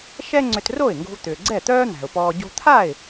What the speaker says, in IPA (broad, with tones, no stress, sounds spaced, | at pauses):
ʃ ɛ˥ ŋ͡ǀ ʏ˧ t r o˥˩ ɪ̯ ŋ ɡ o̤˧ v t̪ ʏː˩ ɡ͡ǀ ɛ˥˩ t̪ œː˥ n̪ æ̤˩ ʊ̯ p ɔː˧ ɟ o̤˧ t̪ʰ a˥˩ ɪ̯